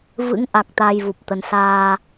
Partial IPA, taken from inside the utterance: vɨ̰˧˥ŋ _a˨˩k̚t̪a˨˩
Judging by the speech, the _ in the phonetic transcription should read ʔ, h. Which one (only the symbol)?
ʔ